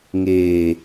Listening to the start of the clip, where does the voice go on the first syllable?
low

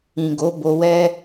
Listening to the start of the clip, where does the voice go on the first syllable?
low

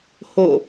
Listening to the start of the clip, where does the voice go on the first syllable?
falling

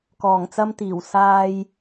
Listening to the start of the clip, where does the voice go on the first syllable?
low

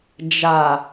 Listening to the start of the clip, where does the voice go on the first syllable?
low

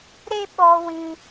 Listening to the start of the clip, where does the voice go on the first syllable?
high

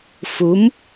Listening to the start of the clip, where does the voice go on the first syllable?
rising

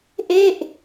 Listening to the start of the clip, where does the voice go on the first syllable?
falling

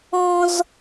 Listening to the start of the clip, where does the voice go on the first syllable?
high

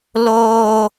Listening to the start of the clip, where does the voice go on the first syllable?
high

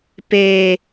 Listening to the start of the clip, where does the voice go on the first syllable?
low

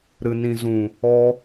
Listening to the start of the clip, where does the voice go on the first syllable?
low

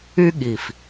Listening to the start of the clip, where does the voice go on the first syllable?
high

